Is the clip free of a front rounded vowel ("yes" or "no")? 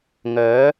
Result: no